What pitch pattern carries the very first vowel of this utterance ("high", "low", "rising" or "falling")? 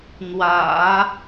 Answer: low